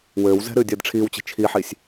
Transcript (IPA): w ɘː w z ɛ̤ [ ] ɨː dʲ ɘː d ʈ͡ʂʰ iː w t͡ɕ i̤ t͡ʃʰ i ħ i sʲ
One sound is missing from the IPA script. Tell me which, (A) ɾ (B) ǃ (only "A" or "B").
A